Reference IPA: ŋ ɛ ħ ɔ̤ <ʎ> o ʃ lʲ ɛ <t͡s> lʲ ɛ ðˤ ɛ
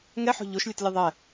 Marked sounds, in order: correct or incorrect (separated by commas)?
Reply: correct, incorrect